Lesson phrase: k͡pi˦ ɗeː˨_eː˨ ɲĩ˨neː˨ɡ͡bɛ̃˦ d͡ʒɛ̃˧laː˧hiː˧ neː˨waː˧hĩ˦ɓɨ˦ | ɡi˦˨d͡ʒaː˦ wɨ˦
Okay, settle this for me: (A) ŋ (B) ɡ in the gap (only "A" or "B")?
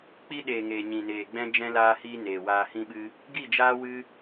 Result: A